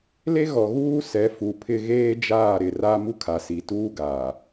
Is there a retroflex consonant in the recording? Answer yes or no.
no